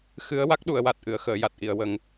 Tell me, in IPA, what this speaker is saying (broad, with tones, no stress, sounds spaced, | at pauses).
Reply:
x ɨ˧˥ ə̯ w a˦˥ k̚ ɗ u˨˩˨ ə̯ w a˨˩ t̚ ʔ ɨ˨˩˨ ə̯ x əː˨˩˨ j a˨˩ t̚ ʔ i˨˩˨ ə̯ w ə˨˩˦ ŋ